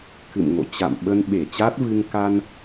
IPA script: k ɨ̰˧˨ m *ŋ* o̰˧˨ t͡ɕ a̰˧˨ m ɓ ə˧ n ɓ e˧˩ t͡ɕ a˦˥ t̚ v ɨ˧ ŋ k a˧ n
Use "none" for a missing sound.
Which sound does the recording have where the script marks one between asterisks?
ŋ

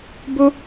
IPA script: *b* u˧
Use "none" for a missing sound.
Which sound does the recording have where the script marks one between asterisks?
b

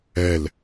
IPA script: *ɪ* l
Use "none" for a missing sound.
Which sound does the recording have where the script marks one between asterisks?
ɛ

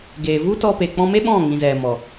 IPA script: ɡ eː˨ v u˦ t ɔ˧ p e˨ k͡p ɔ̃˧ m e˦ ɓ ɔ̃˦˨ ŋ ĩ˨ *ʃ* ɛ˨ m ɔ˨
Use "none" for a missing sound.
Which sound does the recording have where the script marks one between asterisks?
z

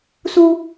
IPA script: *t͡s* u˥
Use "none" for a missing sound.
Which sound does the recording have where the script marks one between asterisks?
s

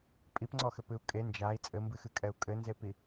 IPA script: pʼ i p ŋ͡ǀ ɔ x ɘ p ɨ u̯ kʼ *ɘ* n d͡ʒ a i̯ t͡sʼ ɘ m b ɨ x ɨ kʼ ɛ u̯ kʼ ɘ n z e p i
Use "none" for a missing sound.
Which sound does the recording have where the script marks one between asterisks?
e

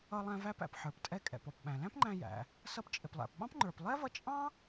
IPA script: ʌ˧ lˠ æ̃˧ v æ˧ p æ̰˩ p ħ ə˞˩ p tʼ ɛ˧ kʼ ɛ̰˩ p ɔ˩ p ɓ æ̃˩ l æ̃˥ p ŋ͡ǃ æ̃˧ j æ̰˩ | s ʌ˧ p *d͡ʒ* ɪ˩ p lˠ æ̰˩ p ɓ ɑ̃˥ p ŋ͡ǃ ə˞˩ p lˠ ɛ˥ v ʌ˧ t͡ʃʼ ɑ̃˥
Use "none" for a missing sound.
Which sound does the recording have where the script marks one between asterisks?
t͡ʃʼ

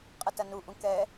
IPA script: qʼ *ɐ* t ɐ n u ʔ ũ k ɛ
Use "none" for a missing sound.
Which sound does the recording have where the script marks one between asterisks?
ɐ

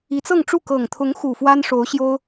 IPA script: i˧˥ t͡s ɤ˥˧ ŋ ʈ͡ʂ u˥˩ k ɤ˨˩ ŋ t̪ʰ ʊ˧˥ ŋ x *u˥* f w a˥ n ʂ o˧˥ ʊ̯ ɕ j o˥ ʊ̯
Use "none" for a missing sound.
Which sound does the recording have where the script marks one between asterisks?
u˨˩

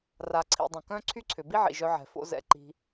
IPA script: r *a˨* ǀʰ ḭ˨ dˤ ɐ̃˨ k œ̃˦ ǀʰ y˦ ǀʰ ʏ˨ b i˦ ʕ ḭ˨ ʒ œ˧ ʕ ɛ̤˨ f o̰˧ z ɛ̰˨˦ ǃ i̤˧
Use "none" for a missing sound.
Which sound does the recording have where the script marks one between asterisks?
a˨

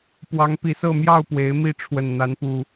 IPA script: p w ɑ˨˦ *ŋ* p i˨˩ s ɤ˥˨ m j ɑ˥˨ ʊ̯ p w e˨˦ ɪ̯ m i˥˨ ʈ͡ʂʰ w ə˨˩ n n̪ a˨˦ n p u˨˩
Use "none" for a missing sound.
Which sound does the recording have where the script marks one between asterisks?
ŋ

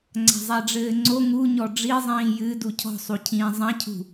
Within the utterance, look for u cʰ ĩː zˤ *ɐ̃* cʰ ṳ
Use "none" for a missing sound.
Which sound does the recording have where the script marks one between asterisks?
ɐ̃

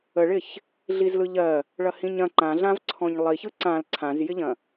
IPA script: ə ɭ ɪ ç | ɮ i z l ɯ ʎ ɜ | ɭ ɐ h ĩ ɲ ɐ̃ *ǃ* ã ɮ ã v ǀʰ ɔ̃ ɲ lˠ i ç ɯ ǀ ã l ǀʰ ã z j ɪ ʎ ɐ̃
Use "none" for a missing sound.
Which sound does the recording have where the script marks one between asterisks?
ǃ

